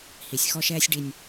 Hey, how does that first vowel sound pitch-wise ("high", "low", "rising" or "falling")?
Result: low